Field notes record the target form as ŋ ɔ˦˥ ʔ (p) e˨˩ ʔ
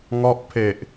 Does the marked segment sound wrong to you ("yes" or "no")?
yes